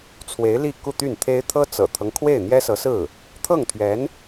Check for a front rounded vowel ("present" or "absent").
present